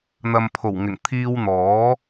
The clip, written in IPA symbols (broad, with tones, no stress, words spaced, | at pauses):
n̪ɐ˨mpʰo˨˩wŋɪ˨˩ŋ t̪ʰiː˧wn̪ɔː˨˥